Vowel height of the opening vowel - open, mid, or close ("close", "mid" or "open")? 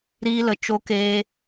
close